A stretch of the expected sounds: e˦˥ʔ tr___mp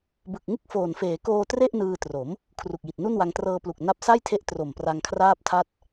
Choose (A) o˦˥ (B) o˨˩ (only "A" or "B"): B